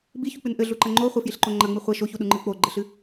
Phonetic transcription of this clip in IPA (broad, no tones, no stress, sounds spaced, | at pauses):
b i ç u k͡p ɨ n ʔ ɘ ɮ u ǃ ɐ ŋ͡ǃ o χʷ ɘ f j i ɬ ǃ o ŋ͡ǃ ɐ ŋ͡m ɨ χʷ ɐ ʃ o ç u ɗ u ŋ͡ǃ ɨ k͡p o ɡ͡ǃ ɘ ɬ ɨ